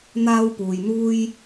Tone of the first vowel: high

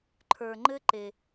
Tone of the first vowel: low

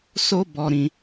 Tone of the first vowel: high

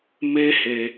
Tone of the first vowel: high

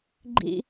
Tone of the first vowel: high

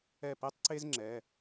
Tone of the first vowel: falling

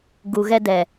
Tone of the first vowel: low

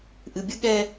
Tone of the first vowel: low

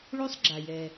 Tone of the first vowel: high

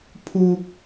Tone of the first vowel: high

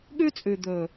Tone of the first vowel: high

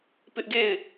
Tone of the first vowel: high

